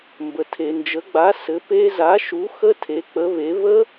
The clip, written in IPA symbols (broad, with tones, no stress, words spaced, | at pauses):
mbə˨tʰe˨nd͡ʒə˨˥ ɡ͡ba˨˥ sɘ˨˥pe˦˥ za˨˥ʃu˨˥ xə˦˥tʰe˨˥ k͡pə˨˥βe˨˥ βə˦˥